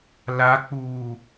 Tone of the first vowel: rising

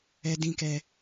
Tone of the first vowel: high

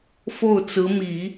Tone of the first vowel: falling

